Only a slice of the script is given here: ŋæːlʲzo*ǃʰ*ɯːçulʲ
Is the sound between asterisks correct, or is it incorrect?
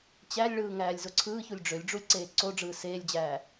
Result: incorrect